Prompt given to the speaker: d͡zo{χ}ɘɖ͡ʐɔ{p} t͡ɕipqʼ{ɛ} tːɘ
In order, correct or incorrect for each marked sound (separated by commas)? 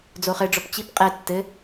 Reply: correct, correct, correct